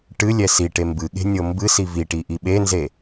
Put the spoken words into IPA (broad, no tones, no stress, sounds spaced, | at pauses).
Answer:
ʈ ɨ lʲ ɛ s i ʈ e m b ɨ ɠ e̤ nʲ ɤ m b ɨ s i v i ʈ i ʔ i ɓ e n z e